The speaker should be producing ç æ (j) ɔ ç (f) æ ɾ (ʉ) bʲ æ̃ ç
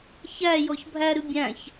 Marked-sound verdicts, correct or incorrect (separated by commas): correct, incorrect, correct